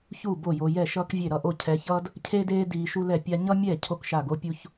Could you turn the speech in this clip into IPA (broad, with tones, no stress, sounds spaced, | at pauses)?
ç u˥˩ b o˥˩ j o˧ j ɛ˥˩ ʃ ʌː˥ k vʲ e˥˩ ɾ ʌ˥˩ ʔ o˥˩ cʰ ɛ˧ ç ʌː˥ d | cʰ e˥ d eː˥ d iː˧ ʃ u˥ l ɛ˥˩ pʲ a˥ ɲ ʌ˥ mʲ ɛ˥˩ cʰ o˥ k ʃ a˥˩ ɡ o˥ pʲ u˥ ç